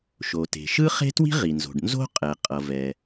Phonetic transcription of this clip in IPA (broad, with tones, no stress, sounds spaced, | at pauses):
ʃ o˩ t e̤˩ ʃ ɯ˥ χ e̤˥ t w i̤˥ ʁ i˩ n z o̤˩ ɖ n z o̤˥ qʼ ɛ˩ qʼ ʌ˩ v ɛ˩